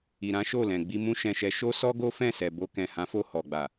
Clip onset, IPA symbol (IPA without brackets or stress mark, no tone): i